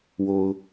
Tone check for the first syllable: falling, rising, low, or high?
low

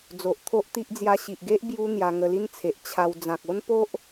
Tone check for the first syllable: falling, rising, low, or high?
low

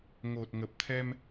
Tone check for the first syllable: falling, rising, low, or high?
low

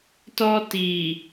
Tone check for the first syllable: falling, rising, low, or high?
high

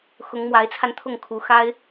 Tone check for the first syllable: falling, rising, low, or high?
rising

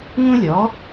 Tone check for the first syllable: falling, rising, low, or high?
high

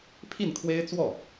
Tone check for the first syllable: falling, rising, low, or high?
falling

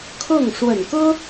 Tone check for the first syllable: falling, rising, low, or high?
falling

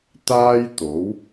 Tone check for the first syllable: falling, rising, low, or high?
high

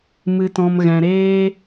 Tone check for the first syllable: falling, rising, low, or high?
low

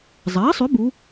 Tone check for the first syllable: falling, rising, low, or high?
rising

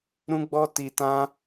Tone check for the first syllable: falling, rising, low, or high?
high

